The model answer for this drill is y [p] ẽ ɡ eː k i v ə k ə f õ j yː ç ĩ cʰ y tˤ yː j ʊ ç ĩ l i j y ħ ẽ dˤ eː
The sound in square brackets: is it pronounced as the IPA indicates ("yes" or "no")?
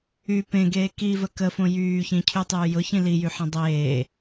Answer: yes